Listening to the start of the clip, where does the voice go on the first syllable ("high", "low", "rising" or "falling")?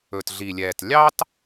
low